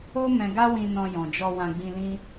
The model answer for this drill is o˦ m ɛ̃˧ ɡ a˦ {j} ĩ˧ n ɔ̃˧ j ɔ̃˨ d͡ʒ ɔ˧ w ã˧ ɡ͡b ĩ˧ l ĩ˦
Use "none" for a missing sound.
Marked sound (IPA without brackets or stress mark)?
w